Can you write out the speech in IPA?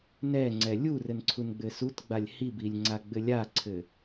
n ɛ ŋ͡ǀ ɛ lʲ u r ɘ n ǀʰ u n ɡ͡b ɘ s u t ɡ͡b a lʲ h i b i lʲ ŋ͡ǀ a ɡ͡b ɘ lʲ a ǀʰ ɘ

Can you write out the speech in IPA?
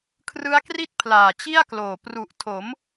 kʰ r ɯ˦˥ a̯ k r i˥˩ t̚ pʰ l aː˨˩ t͡ɕ i˥˩ a̯ k l oː˨˩ p r u˨˩ ʔ tʰ o˩˦ m

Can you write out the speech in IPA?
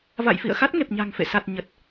v a̰˧˨ j f ḭ˧˨ ə̯ x a˦˥ t̚ ŋ e˨˩ p̚ ɲ a̤˨˩ ŋ f ḛ˧˨ s a˨˩ t̚ ɲ ə˨˩ t̚

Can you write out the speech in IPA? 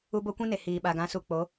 u˦ b o˦ kʷ ĩ˦ n e˨ h iː˨ ɓ a˨ ɡ ã˨˦ s u˨ k͡p o˨˦

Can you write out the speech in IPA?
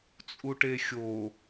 t͡sʼ u ʈ e xʲ o

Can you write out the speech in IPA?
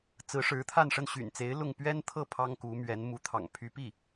t͡s ɹ̩˧˥ ʂ ɻ̩˧˥ t̪ʰ a˥˧ n ʂ ə˥˩ n ɕ y̰˨˩ n t͡s e˧˥ ɪ̯ l ʊ˥˩ ŋ p ɥ ɛ˥ n t̪ʰ ɤ˥˩ pʰ ɑ˥ ŋ k u˧˥ m ɥ ɛ˧˥ n m u˧˥ t̪ʰ ɑ̰˨˩ ŋ pʰ y˧˥ p i˥˩

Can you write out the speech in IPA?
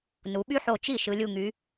n u˩˧ ɓ y˦ ħ o˧˩ t͡ʃ i˥˩ ʃ ɯ˩˧ lʲ u˧˩ ŋ y˩˧

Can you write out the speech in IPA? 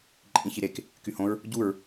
ǃʼ ĩ ç i ɾ e k | k y h õ ɹ | ɟ u ɹ

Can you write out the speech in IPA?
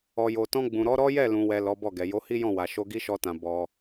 ɔ˨ j o˨ t ɔ̃˧ ɡ͡b ũ˨ ɾ ɔ˨˦ ɾ ɔ˦ j ɛ˦˨ l ũ˨ w ɛ˨ l ɔ˨˦ b ɔ˦˨ ɡ ɛ˨ j o˨˦ h i˦ j ɔ̃˦˨ w a˨ ʃ o˧ ɡ i˦ ʃ ɔ˧ t ã˨ b ɔ˧

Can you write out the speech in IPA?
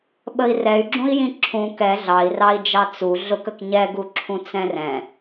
ɓ ə i̯ r ɛ y̯ ɡ͡ǁ ũ i̯ j ĩ ǁʰ ũ k ɛ ɮ ɑ i̯ r ɑ i̯ d͡ʒ ɑ t͡s u ɮ ʊ k ə k ɲ ɛ ɡ u ǁʰ ũ t͡s ɛ̃ r ɛ̃

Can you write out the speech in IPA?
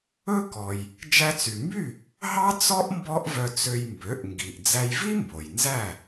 ɵ˥ k ɔ˩ j | d͡ʒ æ˧ t͡s y˩ m b y˥˩ | ɦ ɑ˥ t͡s ɔ˥ ʔ m b ɔ˥ ʔ v œ˧ t͡s ø˧ j m b ø˩˥ ʔ ŋ ɡ i˩ ʔ d͡z æ˧ j v i˥ m b o˩ j n z æ˥˩

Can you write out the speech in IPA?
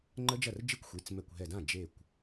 ŋ͡ǃ ə˦˥ d͡ʒ ɐ˥˩ r d͡ʒ i˥˧ kʷ xʷ i˩˧˩ t͡s m ɛ˧˩ kʷ ɦ ɛ˧˩ d ã˥˩ d͡ʒ e˧˩ kʷ

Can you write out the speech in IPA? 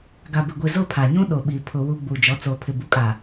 ɡ a˨ b ɪ˨ ɡʷ i˨ z ʊ˦˨ pʰ a˨ ɲ ũ˦ ɗ o˨ ɓ iː˨ pʰ ʊ˨ w u˨ ɡ͡b uː˨ d͡ʒ ɔ˨˦ t͡s oː˨ pʰ ɪ˨ b u˨ kʼ a˨

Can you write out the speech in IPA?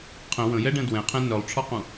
qʰ ə̃ w ə̃ j ɛ ɖ ɛ̃ d w ɛ̃ qʰ ɛ̃ n œ lˠ ʈ͡ʂʰ ɔ q ũ

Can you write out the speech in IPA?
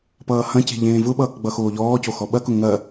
p ʌː h ɐ̃ c e̤ ʎ ẽː v ʊ ɓ ʌː k ɡ͡b ʌ x oː ʎ ɔː c o x ɔ ɓ ɐ k ʊ ŋ ɐ

